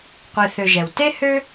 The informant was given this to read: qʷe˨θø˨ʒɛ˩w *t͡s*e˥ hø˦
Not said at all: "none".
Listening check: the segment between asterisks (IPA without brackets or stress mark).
t